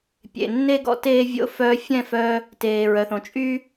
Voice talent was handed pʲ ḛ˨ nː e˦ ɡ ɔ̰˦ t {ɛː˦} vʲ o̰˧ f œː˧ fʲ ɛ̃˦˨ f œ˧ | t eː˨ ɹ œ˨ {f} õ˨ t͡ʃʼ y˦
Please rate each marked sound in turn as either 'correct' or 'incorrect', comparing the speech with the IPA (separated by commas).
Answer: incorrect, incorrect